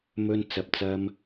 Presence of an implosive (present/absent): absent